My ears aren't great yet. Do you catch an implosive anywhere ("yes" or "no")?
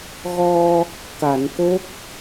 no